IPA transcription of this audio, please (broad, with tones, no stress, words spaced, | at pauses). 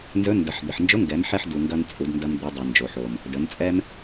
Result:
nzɵ˧˥ndɐ˩˧ħ d̪ɪ˩ħnd͡ʒʊ˧˥ŋɡɛ˩˧mħɛ˧ħ du˩ŋɡɐ˧n t͡sʼu˩˧dndɐ˧m d̪u˩˧dˤɛ˩nd͡ʒo˩ħ o˩m | də˩˧nt͡sʼɛ˥m